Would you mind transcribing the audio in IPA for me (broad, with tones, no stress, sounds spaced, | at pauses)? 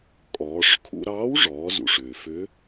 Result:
kʼ ɔː˩˧ ʂ kʰ ṵ˧ ɾ ɑː˧˥ w ʐ ɔː˩˧ z ṵ˩ ʂ ʏː˩ f ʏ˧˥